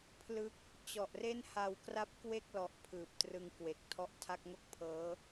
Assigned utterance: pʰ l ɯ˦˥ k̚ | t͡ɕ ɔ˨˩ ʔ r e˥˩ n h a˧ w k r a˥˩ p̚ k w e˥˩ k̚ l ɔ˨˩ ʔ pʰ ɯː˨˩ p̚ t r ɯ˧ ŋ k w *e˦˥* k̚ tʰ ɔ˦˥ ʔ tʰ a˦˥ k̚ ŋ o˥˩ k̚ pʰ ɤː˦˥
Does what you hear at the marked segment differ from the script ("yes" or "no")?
yes